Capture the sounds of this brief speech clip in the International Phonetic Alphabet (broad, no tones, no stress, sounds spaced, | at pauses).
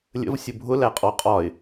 lʲ ə̰ v sʲ ʊ bʱ ʊ l æ qʼ ɔ qʼ ɒ ɪ̯